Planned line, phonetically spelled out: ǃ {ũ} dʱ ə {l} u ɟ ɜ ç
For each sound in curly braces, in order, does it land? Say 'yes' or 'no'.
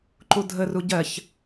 no, no

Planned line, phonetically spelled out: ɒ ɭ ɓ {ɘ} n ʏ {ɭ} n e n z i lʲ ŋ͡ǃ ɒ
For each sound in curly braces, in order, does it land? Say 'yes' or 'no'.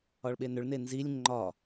no, yes

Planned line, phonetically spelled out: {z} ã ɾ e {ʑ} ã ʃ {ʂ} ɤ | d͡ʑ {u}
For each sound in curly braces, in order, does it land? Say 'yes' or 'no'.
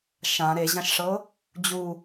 no, yes, yes, yes

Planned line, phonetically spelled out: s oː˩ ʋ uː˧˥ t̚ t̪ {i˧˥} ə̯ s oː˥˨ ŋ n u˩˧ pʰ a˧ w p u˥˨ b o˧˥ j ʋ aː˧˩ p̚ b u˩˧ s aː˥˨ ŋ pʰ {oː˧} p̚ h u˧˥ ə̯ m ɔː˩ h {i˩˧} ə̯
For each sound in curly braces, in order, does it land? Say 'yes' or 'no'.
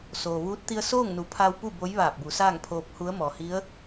no, yes, no

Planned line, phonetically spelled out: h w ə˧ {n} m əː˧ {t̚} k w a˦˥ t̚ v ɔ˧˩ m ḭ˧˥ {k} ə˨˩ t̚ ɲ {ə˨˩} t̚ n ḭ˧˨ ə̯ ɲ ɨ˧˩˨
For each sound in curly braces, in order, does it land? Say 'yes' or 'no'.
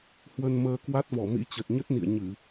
yes, no, no, no

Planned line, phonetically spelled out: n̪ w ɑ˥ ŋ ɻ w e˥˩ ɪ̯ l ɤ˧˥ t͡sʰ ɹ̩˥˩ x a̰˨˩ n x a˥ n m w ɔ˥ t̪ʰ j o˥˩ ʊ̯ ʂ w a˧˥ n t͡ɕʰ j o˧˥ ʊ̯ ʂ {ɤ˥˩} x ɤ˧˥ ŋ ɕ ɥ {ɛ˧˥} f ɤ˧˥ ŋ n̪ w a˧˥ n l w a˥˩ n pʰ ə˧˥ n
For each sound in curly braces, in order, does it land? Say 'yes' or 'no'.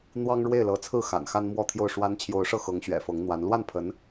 yes, no

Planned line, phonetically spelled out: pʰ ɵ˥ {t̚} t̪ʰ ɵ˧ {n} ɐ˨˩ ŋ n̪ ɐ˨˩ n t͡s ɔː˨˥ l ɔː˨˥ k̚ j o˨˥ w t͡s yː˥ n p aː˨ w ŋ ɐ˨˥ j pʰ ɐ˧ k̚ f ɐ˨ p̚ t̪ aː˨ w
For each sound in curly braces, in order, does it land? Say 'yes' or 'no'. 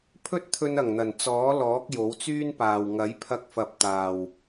yes, yes

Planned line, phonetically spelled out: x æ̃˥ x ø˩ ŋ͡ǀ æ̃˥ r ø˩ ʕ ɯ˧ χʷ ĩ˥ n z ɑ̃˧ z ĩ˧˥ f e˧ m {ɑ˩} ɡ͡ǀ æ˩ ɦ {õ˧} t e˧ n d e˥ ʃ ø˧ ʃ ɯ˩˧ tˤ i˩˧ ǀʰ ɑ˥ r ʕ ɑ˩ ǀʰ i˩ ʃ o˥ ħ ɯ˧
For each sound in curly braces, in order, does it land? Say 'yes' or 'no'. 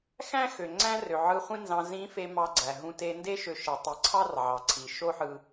no, no

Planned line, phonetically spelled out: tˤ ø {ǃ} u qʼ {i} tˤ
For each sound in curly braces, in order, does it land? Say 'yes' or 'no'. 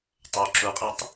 no, yes

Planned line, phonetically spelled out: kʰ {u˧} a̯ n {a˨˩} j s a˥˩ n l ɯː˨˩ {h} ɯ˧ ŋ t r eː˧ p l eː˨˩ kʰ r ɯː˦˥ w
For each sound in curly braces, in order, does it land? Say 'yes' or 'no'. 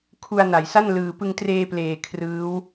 yes, yes, no

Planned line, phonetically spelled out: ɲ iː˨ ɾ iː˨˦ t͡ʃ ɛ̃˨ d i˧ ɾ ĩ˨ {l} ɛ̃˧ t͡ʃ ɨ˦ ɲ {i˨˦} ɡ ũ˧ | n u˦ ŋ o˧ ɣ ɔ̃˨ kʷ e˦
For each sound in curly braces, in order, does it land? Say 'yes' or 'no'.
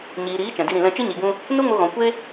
yes, no

